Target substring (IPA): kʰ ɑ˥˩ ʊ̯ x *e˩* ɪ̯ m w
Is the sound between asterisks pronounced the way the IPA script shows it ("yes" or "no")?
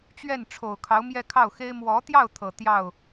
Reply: no